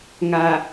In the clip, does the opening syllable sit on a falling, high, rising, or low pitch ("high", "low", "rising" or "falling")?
low